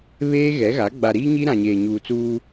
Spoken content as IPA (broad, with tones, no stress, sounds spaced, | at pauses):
β eː˦ ɣ ɛ˨˦ ɣ a˨˦ ɡ͡b a˨ ɾ i˦ ɲ i˦ ɾ ã˨ ɲ eː˨ ɲ uː˨ t͡s uː˦